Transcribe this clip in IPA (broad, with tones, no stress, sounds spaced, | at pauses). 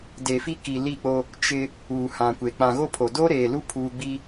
d e˨ f i˦ k i˨ l i˦˨ k͡p o˦ | t͡ʃ ɪ˦ | uː˨ h ã˨ kʷ e˨ k͡p ã˨ ɣ o˦ pʰ o˨ d o˦ ɾ eː˨ l u˦ pʰ uː˦ ɡ͡b i˦